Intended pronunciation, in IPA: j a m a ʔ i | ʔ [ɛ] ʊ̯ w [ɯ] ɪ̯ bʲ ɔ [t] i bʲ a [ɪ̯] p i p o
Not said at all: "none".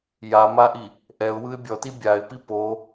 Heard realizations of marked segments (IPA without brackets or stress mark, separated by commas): ɛ, ɯ, t, ɪ̯